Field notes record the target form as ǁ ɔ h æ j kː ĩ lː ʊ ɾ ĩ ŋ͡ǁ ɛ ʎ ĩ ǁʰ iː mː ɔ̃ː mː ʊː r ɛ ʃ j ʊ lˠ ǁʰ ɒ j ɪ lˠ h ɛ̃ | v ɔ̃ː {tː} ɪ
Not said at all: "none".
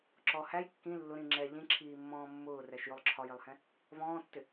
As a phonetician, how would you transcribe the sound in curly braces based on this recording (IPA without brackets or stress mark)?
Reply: tː